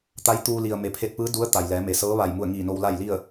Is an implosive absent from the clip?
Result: yes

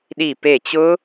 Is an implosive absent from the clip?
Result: no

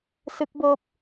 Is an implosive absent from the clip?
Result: yes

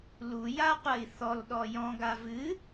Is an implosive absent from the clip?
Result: no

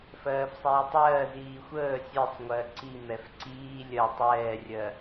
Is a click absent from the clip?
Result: no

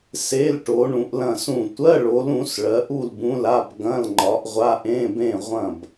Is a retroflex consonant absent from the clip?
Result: no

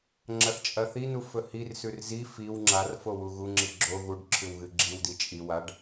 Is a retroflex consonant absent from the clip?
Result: no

